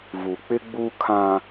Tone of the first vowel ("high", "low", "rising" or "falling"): low